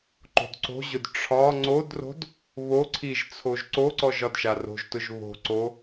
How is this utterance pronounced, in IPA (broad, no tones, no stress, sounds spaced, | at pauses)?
ǃ o̤ d ǀ o̤ ʑ ʊ d ʈ͡ʂʰ ɒ ŋ͡ǀ o d r o̤ d | β o ǀʰ i ʒ t͡sʰ o ʒ ǀ o ǀ ɔ ʒ ɒ d ʃ a r o̤ ʒ t ʊ ʒ β o̤ ǀ o